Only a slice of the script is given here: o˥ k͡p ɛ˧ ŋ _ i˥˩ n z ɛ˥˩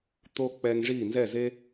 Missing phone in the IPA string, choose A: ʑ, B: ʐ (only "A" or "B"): B